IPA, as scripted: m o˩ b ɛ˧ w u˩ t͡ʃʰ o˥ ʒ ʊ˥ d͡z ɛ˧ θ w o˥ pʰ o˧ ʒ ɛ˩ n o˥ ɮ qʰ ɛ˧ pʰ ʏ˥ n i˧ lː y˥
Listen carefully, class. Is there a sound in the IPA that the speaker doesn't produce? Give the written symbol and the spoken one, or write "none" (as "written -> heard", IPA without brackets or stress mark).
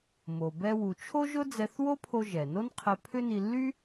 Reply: ɮ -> n